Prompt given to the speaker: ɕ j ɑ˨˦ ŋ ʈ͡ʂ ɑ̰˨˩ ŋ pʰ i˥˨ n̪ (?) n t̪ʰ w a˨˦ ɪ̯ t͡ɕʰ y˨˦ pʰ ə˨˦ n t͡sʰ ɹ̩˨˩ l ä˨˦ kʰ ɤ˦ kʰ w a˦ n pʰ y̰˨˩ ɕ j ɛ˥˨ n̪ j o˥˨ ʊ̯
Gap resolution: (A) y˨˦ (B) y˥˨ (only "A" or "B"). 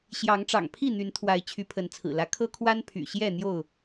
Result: A